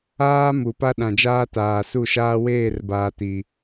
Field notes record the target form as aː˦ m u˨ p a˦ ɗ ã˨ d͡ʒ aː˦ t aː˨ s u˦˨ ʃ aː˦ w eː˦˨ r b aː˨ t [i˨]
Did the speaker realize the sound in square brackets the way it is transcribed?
yes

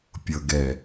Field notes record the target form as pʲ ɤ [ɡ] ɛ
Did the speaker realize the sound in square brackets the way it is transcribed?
yes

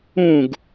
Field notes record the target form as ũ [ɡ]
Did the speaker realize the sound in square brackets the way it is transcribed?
yes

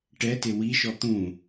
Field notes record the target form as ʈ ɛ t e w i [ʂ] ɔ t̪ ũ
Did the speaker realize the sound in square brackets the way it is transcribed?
no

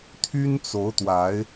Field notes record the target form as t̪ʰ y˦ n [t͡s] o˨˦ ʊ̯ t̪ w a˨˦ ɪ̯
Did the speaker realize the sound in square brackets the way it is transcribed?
yes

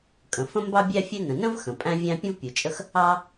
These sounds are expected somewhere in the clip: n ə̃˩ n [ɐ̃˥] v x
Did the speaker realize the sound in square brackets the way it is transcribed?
no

